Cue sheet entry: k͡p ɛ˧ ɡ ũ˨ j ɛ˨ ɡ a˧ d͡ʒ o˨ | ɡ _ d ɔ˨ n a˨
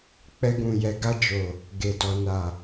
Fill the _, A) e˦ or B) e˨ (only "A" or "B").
B